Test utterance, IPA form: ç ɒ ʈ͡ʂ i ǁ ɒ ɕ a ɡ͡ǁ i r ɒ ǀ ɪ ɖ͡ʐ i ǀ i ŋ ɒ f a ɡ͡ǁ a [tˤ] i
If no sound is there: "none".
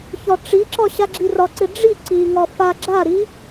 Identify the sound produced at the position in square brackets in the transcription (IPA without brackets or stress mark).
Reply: ɾ